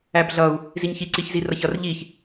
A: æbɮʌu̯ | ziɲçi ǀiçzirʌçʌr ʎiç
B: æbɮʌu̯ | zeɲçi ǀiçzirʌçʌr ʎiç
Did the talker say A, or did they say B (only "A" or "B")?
A